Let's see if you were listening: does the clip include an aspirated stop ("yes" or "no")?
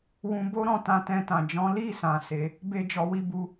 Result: no